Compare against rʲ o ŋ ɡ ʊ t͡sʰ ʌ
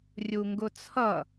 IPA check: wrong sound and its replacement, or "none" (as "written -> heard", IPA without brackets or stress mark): o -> u